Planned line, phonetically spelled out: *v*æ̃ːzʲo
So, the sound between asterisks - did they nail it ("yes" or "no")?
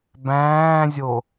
no